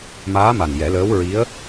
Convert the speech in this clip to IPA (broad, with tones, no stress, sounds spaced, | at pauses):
m aː˧˥ m a˨˩ n j ɛ˨˩˦ l əː˧˥ w ɹ i˧˥ ə̯